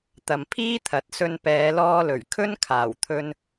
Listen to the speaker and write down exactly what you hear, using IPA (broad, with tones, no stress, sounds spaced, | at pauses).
t̪ ɐ˨ m pʰ iː˥ t̪ʰ ɐ˨˥ t̚ s ɵ˧ n p ɛː˨˧ l ɔː˧ l ɵ˨˩ ɥ kʰ ɵ˥ n kʰ aː˨˩ w t̪ʰ ɵ˧ n